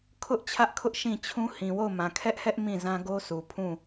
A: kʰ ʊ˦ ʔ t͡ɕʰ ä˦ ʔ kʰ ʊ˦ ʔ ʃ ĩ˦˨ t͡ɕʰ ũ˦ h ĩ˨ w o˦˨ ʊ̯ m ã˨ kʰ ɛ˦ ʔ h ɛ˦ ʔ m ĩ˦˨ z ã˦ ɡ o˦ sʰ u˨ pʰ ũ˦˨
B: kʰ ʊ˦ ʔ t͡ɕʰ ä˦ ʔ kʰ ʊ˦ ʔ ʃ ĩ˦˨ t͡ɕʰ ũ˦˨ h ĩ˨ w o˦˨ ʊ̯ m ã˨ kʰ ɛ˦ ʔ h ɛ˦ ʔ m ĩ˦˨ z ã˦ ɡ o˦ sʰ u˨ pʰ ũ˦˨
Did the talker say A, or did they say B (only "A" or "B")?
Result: A